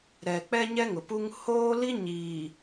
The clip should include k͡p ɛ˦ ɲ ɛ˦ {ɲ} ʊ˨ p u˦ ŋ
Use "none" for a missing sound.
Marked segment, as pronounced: ŋ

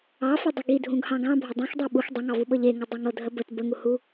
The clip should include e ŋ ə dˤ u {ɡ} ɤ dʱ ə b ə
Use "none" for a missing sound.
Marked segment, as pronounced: ŋ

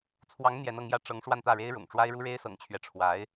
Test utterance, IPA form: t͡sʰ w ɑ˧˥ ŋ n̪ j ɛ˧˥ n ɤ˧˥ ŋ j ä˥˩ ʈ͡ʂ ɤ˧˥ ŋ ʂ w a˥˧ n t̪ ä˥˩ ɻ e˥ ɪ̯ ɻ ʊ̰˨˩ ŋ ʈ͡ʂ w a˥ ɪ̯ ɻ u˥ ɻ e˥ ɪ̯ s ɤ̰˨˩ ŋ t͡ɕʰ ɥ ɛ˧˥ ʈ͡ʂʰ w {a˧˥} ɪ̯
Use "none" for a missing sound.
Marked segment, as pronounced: a˧˥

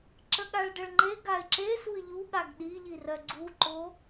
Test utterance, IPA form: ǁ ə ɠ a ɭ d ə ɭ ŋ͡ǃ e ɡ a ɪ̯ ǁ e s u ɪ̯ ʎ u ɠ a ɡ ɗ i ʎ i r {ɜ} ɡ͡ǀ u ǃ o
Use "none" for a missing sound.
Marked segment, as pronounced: ɜ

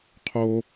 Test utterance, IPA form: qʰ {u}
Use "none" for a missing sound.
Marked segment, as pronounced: o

